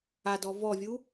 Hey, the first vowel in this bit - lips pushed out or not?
no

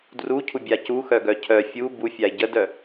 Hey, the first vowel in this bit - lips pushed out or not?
yes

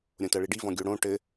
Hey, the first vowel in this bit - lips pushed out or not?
yes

